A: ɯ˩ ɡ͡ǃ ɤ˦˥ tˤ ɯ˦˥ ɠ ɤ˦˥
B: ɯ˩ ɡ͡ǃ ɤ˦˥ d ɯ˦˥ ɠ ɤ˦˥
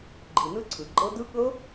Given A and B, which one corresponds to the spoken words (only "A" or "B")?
B